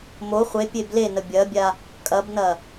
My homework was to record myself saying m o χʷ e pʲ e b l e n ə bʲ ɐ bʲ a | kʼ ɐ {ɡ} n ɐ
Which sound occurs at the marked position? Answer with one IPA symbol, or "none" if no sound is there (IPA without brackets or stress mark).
b